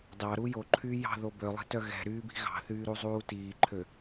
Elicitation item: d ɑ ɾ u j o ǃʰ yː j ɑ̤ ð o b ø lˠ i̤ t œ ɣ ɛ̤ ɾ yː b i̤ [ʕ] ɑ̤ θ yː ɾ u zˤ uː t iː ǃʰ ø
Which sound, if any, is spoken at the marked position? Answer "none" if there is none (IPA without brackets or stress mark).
ɣ